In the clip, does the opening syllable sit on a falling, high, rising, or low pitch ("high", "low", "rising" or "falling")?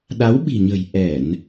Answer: rising